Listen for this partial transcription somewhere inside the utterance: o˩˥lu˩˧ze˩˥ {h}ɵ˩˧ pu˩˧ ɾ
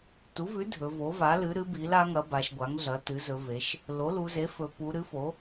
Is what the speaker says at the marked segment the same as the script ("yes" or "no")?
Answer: no